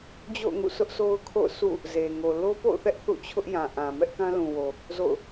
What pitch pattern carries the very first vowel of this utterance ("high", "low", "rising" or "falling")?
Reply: falling